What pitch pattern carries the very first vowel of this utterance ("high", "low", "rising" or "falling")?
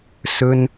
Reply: high